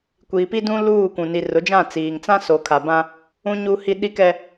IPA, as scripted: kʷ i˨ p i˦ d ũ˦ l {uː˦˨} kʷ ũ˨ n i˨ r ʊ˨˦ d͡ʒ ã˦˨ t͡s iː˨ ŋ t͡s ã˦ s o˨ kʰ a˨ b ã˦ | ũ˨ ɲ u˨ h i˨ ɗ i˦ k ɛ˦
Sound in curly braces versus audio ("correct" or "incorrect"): correct